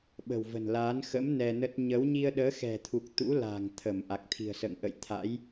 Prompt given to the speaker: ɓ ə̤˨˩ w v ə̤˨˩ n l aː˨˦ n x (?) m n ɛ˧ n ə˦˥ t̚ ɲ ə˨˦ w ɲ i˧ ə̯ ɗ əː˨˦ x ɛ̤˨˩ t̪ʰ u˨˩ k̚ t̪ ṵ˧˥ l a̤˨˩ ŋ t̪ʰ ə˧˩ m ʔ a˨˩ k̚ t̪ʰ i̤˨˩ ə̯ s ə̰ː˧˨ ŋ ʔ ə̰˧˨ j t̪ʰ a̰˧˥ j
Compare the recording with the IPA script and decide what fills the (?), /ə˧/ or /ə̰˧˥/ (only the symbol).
ə̰˧˥